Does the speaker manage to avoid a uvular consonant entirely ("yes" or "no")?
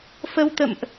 yes